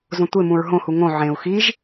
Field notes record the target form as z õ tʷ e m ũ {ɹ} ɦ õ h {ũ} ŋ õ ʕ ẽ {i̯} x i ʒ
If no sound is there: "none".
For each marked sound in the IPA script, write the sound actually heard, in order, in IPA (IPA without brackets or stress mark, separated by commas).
ɹ, u, u̯